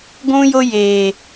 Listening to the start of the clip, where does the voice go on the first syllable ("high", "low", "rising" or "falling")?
high